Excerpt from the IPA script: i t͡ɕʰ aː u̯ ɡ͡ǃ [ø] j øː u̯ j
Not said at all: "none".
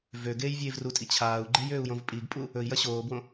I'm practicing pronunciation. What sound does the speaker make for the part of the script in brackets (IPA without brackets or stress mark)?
e